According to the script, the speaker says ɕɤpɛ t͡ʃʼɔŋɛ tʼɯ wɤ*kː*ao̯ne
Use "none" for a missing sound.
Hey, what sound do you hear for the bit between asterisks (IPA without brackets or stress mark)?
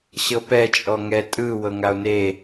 ŋ